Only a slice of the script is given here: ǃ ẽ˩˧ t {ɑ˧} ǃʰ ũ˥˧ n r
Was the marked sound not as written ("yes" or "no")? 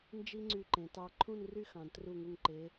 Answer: no